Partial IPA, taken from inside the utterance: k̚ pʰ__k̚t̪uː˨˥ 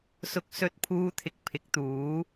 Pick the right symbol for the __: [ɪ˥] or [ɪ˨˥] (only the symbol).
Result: ɪ˨˥